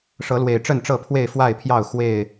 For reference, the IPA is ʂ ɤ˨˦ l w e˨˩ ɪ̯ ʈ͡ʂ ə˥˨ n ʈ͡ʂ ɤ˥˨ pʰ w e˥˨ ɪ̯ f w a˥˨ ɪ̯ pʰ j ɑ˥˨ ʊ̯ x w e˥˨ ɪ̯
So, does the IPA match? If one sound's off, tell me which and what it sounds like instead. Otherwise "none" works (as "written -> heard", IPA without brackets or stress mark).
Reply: none